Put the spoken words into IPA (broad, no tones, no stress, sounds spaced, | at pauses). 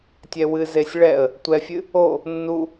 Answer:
tʲ ɛ w ɨ z e sʲ ɭ ɛ ə̯ | tʷ ɛ fʲ ɨ | o | nː u